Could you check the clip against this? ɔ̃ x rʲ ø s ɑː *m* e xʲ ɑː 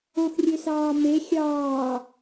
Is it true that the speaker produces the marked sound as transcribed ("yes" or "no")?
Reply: yes